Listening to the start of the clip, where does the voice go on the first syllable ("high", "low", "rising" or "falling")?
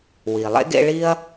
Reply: low